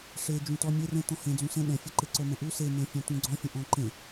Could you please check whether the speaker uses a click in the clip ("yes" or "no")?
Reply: yes